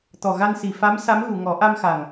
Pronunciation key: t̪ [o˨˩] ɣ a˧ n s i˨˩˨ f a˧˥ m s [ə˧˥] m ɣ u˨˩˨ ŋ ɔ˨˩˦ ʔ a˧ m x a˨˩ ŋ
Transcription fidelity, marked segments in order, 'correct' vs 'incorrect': incorrect, incorrect

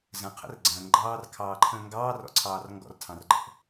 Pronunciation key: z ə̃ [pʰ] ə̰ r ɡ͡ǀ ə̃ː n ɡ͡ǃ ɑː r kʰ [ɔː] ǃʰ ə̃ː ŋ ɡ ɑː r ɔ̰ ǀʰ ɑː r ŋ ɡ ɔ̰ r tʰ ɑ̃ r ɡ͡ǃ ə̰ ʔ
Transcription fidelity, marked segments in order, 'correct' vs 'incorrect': incorrect, incorrect

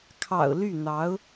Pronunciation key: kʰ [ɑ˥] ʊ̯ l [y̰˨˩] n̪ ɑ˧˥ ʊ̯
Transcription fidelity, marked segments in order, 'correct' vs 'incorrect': incorrect, incorrect

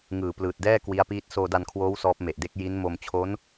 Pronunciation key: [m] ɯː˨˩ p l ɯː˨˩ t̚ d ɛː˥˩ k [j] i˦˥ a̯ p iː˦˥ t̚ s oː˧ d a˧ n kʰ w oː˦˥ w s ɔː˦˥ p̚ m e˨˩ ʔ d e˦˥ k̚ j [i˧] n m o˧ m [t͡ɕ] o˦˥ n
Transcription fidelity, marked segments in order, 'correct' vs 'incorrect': incorrect, incorrect, incorrect, incorrect

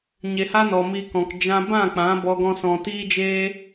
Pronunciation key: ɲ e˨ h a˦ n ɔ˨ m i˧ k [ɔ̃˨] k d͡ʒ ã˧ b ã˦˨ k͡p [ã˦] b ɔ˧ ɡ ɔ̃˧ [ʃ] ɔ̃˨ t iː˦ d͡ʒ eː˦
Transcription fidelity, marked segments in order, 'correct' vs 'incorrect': correct, incorrect, incorrect

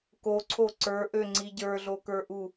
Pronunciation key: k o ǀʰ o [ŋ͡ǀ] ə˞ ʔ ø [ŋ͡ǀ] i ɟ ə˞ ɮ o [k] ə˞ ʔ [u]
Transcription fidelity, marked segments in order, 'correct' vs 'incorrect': incorrect, correct, correct, correct

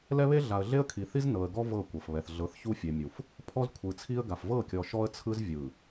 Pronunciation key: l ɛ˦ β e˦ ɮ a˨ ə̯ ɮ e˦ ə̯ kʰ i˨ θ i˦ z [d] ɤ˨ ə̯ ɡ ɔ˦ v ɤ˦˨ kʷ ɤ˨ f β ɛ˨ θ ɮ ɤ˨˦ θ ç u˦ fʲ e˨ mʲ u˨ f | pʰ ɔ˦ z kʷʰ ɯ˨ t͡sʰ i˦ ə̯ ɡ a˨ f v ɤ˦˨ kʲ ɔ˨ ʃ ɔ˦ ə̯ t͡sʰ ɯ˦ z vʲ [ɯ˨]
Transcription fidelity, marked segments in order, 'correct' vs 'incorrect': incorrect, correct

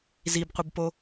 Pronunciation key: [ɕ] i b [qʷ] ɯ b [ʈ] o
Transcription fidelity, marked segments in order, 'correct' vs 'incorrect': incorrect, correct, incorrect

